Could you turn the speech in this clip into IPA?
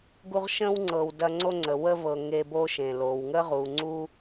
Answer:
ɡu˦ʁʃə̃˥wŋ͡ǀɤ˨w dɐ˦ŋ͡ǀo˥ŋ͡ǀə˩ wə˦vɤ˨ ŋe˦bo˥ʃẽ˩ lo˩wŋə˥ ʁu˩ŋ͡ǀu˦

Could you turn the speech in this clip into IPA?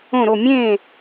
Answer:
õ˧˩ɾo˧˩ mʲẽ˥˩

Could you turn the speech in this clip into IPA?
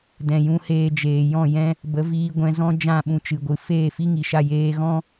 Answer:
dɛ̃˧ jũ˧ heː˧ d͡ʒeː˨jɔ̃˦˨jɛ̃˦ | bə˨˦viː˧ɡʷɛ̃˧ zɔ̃˦ d͡ʒã˦˨ɓũ˧t͡ʃɨ˨ɡʷɨ˨ feː˦˨fi˦ŋi˨ʃa˦˨ jeː˧ɣɔ̃˦

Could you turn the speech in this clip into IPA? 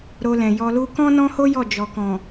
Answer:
ɾo˧lɛ̃˨jɔ˧lu˦ kɔ̃˦nɔ̃˦ho˦ jɔ˦˨d͡ʒɔ˨kɔ̃˨

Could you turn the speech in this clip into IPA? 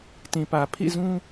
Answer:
tĩ˨pä˨ pʰḭ˦˨zũ˦

